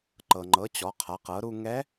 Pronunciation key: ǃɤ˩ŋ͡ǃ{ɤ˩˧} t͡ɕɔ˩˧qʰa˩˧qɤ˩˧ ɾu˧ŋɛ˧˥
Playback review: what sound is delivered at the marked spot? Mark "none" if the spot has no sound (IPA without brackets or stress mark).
ɤ˩˧